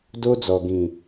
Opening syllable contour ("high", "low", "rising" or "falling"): high